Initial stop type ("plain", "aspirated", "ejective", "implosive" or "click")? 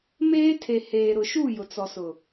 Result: aspirated